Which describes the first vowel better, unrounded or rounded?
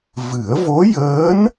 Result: unrounded